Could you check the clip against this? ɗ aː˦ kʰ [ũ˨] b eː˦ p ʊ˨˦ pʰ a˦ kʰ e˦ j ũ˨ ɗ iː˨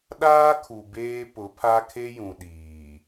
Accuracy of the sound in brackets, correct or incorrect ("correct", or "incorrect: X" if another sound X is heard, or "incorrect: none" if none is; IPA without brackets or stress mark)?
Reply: incorrect: u˨